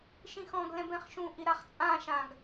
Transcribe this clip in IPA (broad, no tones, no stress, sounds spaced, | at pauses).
ʃ ĩ x ɔ̃ ɡ l ɛ̃ b ɛ̃ χ ʃ ũ ʔ i ɾ a χ t͡sʼ ã ʃ ã ɡ